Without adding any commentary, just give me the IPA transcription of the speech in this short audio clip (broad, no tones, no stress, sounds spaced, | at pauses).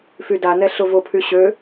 f y d a n ɛ ɬ ʊ v ʊ pʰ y ɕ ø